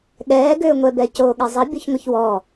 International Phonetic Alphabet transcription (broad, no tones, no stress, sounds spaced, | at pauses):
ɠ ɛː ɡ ʏː ŋʷ ɛ b ɛ c oː ɠ ɛ zˤ ɘ bʲ o ç ŋʷ ɘ ç w ɔː